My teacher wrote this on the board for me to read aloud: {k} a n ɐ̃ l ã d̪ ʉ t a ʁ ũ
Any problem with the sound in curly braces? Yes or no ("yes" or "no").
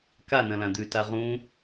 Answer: no